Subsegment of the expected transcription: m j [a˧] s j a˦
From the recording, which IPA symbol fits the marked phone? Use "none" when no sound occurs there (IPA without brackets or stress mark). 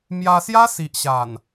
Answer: a˧